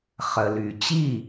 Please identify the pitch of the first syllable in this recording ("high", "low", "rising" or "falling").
low